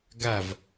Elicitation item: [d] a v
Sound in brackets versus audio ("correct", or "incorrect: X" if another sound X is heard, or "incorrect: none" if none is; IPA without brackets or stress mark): incorrect: ɡ